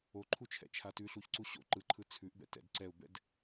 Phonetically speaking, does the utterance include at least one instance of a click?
yes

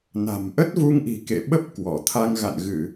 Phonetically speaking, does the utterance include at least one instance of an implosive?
yes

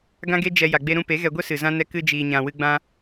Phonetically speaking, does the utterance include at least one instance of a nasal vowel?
yes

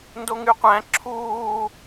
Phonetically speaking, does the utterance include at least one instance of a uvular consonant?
yes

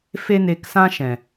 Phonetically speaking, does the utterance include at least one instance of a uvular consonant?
no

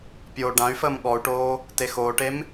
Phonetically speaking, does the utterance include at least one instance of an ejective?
no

